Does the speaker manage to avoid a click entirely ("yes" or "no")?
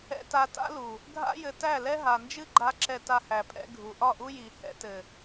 no